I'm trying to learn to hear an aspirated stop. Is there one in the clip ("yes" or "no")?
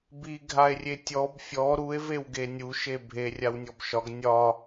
no